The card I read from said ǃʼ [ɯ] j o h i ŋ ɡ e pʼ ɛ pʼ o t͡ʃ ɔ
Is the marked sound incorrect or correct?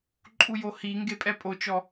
incorrect